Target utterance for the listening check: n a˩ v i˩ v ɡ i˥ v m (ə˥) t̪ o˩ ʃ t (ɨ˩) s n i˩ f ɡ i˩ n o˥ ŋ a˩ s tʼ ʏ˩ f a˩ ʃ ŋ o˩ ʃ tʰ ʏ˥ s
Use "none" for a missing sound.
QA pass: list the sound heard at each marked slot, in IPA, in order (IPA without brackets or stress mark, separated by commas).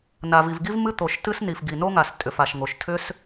ɨ˥, ɨ˥